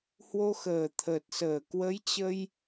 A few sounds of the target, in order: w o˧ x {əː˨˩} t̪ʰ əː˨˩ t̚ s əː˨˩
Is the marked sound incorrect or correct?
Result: correct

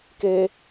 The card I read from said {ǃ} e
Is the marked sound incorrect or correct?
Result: incorrect: k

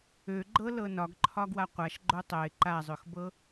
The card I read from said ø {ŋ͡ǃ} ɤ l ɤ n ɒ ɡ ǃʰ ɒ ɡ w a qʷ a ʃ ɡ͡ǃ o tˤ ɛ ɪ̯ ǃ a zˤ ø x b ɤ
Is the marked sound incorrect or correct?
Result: incorrect: ɡ͡ǃ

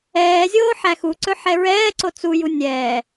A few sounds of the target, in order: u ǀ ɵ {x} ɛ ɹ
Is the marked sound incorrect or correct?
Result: incorrect: ħ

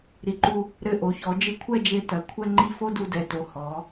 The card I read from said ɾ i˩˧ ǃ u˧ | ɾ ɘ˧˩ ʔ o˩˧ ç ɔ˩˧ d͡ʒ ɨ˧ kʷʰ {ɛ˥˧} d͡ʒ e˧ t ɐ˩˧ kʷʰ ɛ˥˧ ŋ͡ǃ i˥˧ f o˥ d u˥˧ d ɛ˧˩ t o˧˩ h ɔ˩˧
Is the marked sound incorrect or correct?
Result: correct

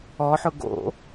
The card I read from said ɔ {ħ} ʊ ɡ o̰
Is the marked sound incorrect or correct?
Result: correct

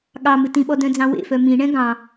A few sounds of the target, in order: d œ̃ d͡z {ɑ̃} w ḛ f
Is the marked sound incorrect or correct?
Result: correct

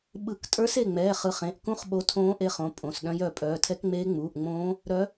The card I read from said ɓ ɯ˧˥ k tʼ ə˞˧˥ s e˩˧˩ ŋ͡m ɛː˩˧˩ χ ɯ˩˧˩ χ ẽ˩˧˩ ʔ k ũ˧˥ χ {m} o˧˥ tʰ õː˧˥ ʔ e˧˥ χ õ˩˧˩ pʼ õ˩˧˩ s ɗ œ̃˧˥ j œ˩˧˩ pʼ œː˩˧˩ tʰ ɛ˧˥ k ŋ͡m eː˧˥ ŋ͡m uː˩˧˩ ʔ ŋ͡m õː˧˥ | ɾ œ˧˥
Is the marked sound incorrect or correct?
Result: incorrect: ɓ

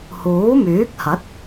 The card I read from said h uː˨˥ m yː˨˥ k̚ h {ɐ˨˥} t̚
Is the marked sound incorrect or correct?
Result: correct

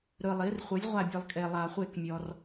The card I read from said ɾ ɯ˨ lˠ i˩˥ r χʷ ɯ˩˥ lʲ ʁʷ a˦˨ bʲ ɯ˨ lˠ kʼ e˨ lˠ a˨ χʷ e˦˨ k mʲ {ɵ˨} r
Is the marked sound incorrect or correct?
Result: incorrect: ɔ˨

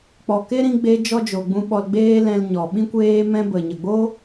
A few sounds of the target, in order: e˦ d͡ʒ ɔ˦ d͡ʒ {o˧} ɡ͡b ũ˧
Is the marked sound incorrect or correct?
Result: incorrect: o˨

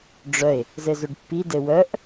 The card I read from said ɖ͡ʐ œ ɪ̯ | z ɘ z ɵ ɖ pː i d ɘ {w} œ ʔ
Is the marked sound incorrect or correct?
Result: correct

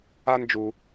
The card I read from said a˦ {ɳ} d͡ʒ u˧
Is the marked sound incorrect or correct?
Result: incorrect: n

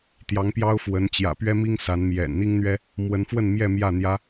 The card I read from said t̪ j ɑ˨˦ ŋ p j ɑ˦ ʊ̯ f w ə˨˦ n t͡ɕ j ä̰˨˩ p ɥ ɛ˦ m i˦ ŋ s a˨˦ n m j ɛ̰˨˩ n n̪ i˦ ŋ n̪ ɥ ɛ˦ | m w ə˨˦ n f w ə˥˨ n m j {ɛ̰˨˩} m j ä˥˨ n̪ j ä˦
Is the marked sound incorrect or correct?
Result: incorrect: ɛ˥˨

